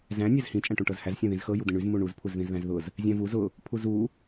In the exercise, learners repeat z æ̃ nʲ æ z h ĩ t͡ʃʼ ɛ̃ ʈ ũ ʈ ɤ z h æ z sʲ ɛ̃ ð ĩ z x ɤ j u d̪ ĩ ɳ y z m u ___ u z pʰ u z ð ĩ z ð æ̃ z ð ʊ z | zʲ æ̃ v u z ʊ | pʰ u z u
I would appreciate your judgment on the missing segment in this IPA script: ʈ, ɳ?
ɳ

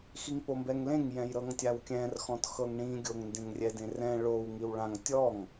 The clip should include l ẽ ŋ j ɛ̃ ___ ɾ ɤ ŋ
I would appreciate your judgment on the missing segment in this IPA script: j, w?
j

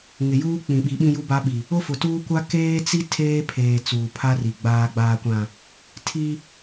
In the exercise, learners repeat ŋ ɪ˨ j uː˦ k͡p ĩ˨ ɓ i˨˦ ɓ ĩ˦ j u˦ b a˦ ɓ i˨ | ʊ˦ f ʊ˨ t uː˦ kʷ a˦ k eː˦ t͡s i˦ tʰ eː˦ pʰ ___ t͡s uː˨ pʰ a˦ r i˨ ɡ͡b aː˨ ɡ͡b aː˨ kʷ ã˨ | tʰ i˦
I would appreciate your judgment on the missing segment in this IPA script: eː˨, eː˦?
eː˨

